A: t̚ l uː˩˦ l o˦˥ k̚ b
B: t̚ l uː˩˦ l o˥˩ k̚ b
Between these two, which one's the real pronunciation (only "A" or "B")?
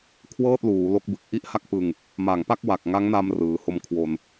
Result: A